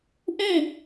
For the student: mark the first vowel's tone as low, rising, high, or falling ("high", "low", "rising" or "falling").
falling